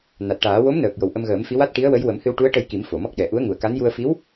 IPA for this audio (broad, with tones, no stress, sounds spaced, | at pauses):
n a˨˩ t̚ ʈ aː˨˩˦ w o˧˥ m n əː˨˩ k̚ j o˨˩ w ʔ ə˧ m ɣ əː˨˩˦ m f i˧˥ w a˦˥ t̚ ʈ i˧˥ ə̯ w ə˧˥ j w ə˨˩˦ m h ɨ˧ w ʈ u˧˥ ə̯ ʈ ə˧ j k i˨˩˦ m f o˨˩˨ m ɔ˦˥ k̚ ɗ ɛ˨˩ ʔ u˧˥ ə̯ ŋ u˨˩ ə̯ k a˧˥ n j u˧ ə̯ f i˧˥ w